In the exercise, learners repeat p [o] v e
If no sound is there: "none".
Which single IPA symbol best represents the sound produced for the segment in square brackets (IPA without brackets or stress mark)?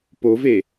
o